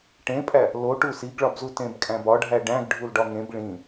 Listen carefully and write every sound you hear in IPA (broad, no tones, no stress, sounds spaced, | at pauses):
ʈ ẽ pʼ æ | l o ʈ u s i ɡ ɭ ɒ b z u t ẽ b kʼ æ̃ b ɒ ɖʱ æ ɖ æ̃ ɡ ɖʱ u l ɖ ɒ ŋ ẽ b ɭ ĩ